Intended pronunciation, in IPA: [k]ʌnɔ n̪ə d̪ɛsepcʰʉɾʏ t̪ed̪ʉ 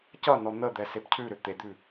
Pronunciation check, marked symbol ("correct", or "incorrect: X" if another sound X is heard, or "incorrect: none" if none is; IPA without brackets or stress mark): incorrect: c